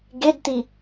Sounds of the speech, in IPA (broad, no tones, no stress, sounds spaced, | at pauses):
ɡ e d t̪ i